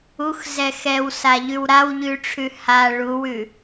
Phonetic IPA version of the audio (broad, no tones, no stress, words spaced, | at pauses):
uxzɛ xɛwsaʎʉw ɾawʎʉʈ͡ʂʰʉ ha ɭuwʉ